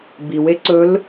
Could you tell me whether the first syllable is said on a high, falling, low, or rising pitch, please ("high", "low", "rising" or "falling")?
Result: low